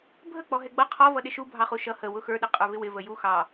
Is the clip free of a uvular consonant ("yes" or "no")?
no